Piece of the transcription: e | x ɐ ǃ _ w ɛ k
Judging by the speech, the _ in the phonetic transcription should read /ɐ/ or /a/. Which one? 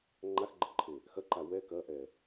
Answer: a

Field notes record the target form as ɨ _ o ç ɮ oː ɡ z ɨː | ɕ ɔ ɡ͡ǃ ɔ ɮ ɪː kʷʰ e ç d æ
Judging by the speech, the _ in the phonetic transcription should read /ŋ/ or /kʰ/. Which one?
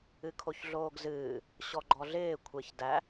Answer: kʰ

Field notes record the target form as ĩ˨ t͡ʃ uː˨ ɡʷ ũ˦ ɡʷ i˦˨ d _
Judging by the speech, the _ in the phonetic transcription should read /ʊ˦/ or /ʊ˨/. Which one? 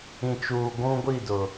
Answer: ʊ˨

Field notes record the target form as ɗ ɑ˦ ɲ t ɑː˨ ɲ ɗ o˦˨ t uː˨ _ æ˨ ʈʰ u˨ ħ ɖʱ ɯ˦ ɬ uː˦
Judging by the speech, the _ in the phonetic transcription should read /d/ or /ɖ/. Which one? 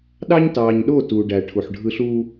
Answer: ɖ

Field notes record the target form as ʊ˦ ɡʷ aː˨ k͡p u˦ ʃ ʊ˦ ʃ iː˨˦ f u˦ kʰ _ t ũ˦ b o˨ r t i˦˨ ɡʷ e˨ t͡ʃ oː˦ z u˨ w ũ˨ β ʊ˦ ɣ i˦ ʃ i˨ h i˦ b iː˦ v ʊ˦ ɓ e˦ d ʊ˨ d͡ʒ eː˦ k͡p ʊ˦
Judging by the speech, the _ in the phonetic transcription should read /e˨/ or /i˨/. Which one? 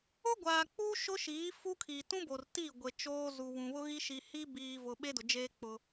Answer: i˨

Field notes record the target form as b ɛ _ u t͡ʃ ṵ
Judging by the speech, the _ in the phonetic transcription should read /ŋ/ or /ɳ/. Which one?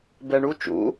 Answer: ɳ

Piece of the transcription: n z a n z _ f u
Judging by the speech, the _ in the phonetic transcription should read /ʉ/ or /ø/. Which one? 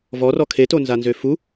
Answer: ø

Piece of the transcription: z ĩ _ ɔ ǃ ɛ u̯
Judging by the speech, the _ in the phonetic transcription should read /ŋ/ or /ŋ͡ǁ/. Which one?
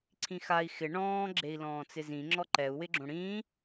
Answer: ŋ͡ǁ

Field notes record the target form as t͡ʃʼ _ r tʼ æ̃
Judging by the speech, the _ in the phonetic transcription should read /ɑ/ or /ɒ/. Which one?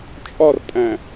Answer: ɒ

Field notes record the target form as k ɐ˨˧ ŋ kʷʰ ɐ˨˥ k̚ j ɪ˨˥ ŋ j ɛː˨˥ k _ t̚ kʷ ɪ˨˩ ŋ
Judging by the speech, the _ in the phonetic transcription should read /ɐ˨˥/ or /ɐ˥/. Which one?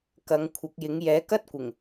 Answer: ɐ˥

